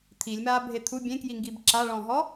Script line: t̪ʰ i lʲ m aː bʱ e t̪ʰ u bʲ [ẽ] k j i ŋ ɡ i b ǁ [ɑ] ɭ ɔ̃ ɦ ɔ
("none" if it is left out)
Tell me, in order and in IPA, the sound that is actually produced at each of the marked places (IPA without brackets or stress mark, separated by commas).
ẽ, a